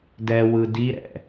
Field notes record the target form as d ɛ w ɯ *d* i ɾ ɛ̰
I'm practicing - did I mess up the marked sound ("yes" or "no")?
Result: no